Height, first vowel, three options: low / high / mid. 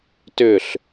high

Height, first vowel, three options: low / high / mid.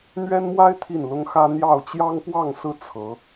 mid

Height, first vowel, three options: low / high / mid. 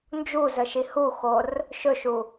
high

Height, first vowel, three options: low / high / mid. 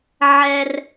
mid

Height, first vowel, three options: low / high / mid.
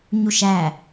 high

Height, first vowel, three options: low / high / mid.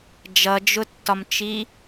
mid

